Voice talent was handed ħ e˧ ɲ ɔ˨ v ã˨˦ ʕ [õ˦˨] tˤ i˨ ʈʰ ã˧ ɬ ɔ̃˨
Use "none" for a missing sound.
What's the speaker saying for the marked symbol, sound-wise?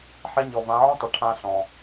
õ˦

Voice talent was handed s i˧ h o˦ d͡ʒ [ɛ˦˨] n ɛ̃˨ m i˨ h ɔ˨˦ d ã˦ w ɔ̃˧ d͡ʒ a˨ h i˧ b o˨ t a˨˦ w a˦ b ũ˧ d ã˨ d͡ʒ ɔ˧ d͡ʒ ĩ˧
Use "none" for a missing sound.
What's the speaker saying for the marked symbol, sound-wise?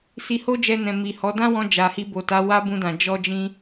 ɛ˧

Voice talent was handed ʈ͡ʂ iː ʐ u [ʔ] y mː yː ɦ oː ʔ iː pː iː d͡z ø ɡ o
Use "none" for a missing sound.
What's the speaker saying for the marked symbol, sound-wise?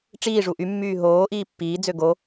ʔ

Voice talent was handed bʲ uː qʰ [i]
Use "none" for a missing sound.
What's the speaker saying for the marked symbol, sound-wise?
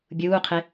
e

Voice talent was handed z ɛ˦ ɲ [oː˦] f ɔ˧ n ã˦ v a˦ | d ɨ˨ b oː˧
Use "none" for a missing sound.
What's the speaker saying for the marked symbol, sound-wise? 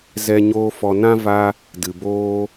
oː˦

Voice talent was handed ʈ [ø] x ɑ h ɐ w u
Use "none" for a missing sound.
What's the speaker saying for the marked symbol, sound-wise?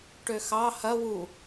ø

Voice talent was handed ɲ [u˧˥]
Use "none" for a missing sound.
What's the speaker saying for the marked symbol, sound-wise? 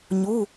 u˩˧˩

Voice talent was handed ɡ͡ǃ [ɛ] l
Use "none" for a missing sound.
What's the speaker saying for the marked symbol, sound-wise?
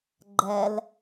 ɛ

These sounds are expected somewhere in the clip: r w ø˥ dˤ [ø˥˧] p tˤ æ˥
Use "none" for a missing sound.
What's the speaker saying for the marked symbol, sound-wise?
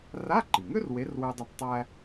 ø˥˧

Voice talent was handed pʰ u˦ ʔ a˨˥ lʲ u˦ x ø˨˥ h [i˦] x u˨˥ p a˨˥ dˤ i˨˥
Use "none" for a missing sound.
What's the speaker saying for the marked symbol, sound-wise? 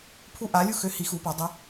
i˨˥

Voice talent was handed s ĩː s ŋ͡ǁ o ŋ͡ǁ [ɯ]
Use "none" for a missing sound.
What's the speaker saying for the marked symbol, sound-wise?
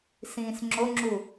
u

